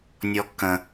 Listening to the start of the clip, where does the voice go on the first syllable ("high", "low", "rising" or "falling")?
high